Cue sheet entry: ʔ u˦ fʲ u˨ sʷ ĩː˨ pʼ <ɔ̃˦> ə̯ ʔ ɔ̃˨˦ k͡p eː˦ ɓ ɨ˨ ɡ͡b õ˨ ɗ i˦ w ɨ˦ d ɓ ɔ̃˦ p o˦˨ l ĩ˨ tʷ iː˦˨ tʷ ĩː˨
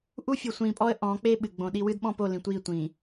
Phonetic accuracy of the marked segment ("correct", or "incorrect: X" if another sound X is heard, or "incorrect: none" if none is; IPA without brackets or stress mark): incorrect: ɔ˦